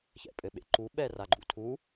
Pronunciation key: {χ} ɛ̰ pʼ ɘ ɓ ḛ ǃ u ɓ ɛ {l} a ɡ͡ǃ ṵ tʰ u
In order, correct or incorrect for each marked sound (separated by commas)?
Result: incorrect, incorrect